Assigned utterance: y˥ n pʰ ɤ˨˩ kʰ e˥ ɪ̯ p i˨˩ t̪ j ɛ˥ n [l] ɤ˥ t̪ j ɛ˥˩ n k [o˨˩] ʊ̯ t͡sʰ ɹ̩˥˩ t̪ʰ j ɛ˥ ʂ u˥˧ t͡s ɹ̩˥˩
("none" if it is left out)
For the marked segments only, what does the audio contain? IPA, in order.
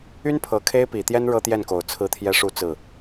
ɻ, o˨˩

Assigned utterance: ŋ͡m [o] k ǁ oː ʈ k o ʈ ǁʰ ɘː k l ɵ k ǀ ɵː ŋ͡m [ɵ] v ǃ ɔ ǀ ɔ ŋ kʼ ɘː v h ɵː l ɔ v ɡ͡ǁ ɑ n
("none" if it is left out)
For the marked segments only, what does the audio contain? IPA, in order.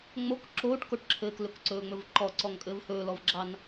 o, ɵ

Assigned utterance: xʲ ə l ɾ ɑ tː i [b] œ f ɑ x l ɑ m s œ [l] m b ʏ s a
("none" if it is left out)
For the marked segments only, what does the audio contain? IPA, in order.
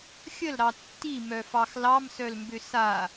m, l

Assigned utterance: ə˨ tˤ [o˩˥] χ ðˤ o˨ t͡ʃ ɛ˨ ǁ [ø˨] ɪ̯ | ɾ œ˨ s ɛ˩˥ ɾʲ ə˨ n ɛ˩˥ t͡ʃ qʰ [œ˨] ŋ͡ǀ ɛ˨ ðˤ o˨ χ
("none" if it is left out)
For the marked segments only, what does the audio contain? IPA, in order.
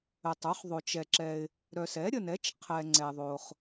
o˩˥, ɛ˨, ɛ˨

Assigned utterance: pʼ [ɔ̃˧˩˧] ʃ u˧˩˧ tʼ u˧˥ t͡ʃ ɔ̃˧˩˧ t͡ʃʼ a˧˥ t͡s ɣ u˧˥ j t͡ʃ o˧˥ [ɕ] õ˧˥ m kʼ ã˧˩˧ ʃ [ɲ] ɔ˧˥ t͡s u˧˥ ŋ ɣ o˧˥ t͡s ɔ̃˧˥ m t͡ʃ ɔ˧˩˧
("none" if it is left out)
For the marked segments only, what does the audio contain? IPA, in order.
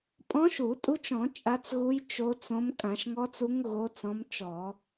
ɔ̃˧˥, t͡s, ŋ

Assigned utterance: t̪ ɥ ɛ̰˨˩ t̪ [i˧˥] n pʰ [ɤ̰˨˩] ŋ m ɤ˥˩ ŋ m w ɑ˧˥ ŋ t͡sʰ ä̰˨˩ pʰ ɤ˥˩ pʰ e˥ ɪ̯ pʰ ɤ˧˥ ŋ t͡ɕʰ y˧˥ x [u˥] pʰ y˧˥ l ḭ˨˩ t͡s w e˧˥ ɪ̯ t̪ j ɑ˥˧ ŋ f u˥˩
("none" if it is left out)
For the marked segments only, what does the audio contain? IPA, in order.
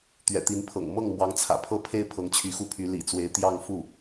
i˧˥, ɤ̰˨˩, u˥

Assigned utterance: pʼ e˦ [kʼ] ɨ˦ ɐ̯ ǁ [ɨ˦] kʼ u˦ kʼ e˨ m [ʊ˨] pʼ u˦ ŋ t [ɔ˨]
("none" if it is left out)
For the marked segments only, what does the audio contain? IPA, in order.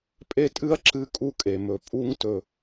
tʼ, ɨ˦, ɵ˨, ɵ˨

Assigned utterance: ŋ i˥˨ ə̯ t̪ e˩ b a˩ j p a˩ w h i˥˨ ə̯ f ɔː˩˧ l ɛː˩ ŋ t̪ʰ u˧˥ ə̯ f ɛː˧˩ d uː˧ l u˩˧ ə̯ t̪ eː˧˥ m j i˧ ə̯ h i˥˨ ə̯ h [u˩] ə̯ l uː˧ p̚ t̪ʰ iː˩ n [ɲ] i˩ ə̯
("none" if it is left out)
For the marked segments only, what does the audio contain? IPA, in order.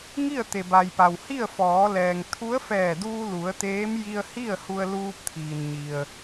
u˧, ɲ

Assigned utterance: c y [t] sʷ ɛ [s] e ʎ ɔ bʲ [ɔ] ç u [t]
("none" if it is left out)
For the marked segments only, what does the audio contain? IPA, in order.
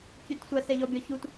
t, s, ɔ, t

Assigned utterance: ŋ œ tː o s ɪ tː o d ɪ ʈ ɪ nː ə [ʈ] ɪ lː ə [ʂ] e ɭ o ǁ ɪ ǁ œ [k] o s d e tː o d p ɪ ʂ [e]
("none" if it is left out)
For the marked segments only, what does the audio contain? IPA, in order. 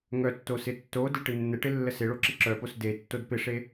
ʈ, s, p, e

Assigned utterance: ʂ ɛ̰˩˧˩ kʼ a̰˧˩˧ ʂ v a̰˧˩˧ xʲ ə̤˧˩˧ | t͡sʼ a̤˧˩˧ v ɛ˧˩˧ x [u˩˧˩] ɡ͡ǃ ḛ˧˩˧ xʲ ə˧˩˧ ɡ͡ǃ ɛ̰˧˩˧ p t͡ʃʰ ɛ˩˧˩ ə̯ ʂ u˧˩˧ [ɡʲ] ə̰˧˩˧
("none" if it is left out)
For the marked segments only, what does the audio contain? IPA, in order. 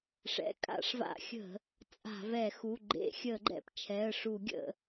u˩˧˩, ɡʲ

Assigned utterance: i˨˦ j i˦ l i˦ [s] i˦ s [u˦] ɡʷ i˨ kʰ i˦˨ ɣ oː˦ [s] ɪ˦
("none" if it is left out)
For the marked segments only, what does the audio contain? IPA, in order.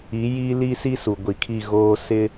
s, u˨, s

